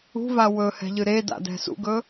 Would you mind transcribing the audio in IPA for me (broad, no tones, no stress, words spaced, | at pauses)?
ṳva wɵhɛ̤ʎɨ ɾeda̰dɛ̤ sṵɡɵ